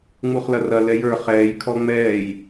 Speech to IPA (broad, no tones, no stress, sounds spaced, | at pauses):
ŋ͡m u χ l ɐ r ɐ l ɛ j ə˞ χ ɛː j kʰ ɔ ŋ͡m ɛː j